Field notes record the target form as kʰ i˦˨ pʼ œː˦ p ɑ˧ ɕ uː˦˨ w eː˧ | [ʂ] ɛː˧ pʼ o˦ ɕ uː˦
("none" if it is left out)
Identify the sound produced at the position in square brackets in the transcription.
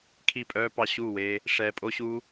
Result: ʂ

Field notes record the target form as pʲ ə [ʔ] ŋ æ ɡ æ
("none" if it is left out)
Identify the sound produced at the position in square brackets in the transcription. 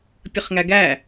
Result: χ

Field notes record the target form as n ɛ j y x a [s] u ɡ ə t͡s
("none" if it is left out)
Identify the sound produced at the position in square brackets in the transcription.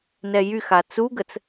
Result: t͡s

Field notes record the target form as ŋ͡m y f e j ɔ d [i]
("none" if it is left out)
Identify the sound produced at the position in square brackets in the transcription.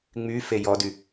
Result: y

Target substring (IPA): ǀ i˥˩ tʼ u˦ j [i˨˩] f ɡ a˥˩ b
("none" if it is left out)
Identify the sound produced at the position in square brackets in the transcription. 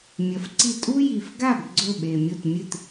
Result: i˨˩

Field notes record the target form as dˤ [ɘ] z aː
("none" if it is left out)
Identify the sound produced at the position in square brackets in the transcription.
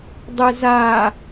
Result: e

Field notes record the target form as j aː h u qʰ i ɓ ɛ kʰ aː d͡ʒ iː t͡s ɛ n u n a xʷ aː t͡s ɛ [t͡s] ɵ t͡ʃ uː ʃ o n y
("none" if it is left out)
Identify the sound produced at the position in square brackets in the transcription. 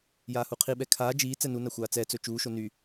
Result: t͡s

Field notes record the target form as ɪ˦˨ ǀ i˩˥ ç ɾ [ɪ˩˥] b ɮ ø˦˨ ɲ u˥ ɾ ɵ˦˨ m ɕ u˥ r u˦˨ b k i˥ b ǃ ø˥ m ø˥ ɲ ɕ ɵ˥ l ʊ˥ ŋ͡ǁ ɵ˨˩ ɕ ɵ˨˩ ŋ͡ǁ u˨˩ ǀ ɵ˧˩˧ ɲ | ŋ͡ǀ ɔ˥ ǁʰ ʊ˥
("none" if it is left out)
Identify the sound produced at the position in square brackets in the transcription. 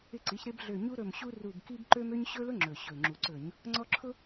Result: ɪ˥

